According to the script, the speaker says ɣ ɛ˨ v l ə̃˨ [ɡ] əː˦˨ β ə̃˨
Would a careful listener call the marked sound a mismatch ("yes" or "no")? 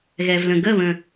no